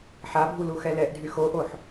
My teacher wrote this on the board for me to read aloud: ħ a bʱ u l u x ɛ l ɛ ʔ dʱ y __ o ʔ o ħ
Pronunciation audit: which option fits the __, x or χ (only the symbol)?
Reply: x